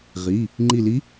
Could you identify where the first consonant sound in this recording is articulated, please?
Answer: uvular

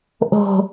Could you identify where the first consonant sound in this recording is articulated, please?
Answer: glottal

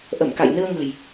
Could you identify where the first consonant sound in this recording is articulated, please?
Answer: glottal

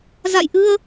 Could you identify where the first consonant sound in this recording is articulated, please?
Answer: alveolar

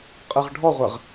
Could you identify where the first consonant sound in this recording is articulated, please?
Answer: uvular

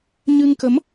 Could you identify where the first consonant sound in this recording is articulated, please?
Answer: palatal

